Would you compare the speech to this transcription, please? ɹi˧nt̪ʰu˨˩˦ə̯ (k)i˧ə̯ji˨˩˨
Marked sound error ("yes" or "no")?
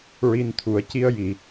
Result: yes